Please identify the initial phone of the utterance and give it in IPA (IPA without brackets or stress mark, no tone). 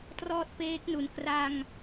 t